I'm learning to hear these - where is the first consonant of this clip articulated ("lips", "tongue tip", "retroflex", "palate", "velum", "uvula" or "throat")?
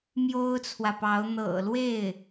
lips